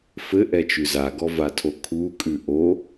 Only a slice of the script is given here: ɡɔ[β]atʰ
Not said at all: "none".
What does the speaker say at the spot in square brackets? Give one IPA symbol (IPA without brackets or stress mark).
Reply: v